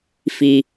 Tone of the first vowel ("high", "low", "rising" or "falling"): low